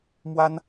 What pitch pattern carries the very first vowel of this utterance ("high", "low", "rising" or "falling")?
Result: high